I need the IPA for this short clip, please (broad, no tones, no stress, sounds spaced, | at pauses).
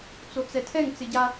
t͡s o t͡s ɛ tʰ ɛ ŋ t͡s ɪ ɟ a